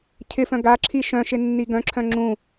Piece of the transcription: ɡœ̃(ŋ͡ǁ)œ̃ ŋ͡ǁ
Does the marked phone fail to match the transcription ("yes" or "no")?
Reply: yes